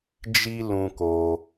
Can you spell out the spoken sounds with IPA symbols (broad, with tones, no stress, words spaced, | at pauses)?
d͡ʒi˧ lũ˧ko˧